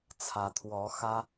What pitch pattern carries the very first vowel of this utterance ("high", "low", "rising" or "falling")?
rising